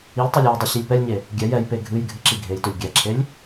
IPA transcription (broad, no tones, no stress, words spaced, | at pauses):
ilʲtˤelʲ jɨdˤi ɕilʲpɛlʲɲe | ɡʲɛj ɛjpe ɡʱɨjɡʱɨ ǁiɡʱejtɵlʲ ɡʲɛǁʰelʲ